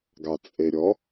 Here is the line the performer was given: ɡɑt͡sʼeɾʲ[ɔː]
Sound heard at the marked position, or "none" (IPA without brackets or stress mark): ɔ